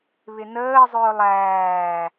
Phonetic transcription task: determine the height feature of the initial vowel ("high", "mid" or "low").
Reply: high